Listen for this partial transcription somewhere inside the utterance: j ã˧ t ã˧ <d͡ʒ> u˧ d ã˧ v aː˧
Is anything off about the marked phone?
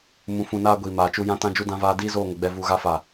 no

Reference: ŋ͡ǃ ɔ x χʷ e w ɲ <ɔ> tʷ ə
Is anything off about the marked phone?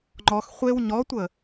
no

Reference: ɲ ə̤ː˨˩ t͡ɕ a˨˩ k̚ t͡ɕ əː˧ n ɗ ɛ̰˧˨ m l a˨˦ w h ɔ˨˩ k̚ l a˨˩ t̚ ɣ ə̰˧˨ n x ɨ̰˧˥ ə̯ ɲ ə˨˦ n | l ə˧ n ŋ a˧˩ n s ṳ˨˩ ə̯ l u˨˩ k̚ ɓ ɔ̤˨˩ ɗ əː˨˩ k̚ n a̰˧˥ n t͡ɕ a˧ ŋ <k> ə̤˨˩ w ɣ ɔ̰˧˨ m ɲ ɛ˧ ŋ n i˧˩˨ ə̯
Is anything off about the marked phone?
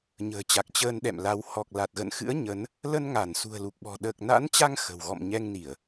yes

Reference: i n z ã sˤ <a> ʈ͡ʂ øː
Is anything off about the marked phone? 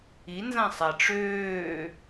no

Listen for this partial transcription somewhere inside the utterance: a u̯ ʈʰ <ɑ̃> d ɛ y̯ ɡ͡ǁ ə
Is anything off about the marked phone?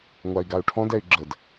yes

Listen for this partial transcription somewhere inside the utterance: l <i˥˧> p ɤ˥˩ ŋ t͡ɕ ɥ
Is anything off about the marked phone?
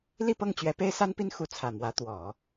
no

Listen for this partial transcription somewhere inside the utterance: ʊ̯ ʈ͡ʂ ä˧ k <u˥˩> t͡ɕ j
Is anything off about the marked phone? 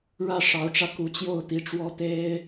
yes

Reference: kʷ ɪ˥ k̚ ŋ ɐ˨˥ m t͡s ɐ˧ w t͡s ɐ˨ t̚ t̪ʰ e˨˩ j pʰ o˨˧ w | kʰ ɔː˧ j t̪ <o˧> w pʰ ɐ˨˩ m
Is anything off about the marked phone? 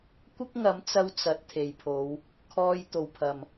yes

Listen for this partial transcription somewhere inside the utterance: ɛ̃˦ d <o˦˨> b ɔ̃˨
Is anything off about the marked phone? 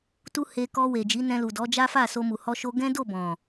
no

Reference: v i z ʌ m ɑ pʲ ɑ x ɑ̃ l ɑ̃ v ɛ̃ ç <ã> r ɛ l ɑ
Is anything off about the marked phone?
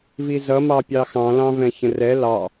yes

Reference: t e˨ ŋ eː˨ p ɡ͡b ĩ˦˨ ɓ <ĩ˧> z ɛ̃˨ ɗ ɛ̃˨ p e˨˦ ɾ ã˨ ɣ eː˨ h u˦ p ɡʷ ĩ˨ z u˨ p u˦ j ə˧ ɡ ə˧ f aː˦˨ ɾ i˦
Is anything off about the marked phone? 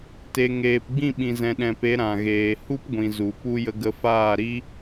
yes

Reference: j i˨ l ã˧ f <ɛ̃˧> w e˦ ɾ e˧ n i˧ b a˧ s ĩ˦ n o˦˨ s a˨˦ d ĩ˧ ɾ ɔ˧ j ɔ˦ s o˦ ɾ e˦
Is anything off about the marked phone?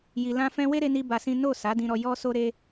no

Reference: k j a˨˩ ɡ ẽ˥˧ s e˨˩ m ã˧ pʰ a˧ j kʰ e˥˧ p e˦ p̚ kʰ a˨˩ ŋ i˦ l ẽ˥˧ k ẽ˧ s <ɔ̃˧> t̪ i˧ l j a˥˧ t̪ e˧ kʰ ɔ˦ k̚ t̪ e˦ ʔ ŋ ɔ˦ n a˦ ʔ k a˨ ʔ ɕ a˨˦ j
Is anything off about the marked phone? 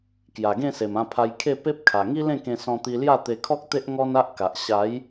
no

